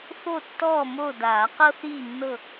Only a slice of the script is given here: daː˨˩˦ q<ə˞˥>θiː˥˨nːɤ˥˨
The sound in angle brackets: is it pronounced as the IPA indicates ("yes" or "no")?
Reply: no